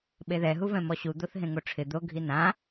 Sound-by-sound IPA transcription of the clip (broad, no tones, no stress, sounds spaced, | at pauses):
ɓ e ð ɛ ɦ u v ɛ̃ m ɔ ɕ u d̪ o θ ɦ ẽ ŋ o ʈ͡ʂʰ ɪ d̪ o ɡʱ i n ã